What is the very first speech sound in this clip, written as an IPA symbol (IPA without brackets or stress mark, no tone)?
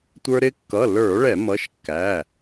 tʷ